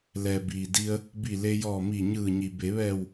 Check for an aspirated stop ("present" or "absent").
absent